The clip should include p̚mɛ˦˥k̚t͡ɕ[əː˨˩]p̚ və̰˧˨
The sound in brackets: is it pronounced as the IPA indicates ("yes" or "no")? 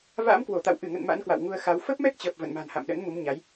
yes